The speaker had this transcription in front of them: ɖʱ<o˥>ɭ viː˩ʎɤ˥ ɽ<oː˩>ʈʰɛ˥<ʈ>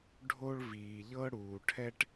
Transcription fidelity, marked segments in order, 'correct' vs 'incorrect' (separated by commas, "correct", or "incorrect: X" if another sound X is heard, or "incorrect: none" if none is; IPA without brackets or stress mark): correct, incorrect: uː˩, correct